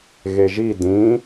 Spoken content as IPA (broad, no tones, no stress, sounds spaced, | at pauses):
ɣ e ʒ i d ĩ